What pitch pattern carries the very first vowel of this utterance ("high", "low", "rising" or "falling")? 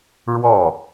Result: falling